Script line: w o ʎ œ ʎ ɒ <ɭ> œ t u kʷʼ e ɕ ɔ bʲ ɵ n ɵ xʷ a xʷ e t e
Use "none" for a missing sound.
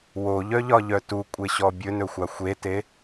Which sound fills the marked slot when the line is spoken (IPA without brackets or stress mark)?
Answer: ʎ